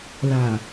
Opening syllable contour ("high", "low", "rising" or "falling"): low